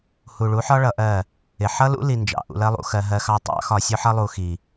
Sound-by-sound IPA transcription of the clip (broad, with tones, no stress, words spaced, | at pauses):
hu˨ɭu˨˦ħɒ˦ ɭʌ˧ʔɜ˦˨ | ɪ˨ ħʌ˦lṵ˦ li˧nd͡ʒɑ̰˨ ʔṵ˧lɜ˦lˠṵ˧xɜ˧ ɦɜ˧xɑ˧tˤɑ̰˨˦ xɒ˨sʲʊ˧ħʌ˧lˠu˨ xi˨